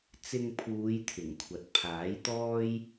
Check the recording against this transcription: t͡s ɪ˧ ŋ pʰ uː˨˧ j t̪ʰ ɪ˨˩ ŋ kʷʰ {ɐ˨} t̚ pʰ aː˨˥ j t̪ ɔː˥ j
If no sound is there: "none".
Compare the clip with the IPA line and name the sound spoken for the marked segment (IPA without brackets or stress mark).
ɐ˨